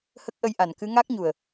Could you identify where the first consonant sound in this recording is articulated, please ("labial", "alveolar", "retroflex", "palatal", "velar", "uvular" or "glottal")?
glottal